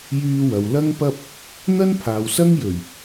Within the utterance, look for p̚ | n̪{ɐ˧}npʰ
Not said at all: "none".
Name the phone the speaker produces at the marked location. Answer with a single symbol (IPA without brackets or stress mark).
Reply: ɐ˥